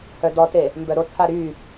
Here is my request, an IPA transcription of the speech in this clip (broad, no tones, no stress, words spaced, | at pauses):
hœdɔte | mbœɾot͡sʰa ɾy